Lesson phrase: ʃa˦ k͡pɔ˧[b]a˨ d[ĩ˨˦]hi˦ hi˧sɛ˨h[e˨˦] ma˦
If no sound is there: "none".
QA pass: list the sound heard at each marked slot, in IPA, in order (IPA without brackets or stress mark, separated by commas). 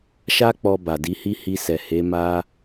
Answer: b, i˨˦, e˨˦